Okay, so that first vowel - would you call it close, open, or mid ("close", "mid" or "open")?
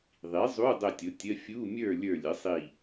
close